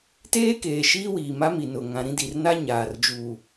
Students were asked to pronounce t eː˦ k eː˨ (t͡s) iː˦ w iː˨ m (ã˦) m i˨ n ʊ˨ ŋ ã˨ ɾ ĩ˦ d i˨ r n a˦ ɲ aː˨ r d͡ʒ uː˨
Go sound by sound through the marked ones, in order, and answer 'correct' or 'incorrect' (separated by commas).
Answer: incorrect, incorrect